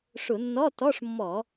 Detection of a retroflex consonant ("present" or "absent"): present